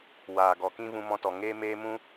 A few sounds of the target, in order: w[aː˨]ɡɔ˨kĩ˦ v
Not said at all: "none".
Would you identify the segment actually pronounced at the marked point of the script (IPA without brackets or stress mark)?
aː˨